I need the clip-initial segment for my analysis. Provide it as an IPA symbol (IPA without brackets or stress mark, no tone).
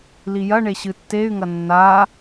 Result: l